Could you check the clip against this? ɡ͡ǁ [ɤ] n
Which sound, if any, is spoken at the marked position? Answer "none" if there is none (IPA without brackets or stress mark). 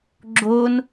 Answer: o